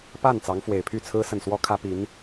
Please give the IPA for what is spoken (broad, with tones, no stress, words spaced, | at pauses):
pa˥˩n t͡sɑ˧˥ŋfwe˨˩ɪ̯ pʰy˥˩t͡sʰɹ̩˥ sə˥˩n swɔ˥kʰä˥pi˧˥n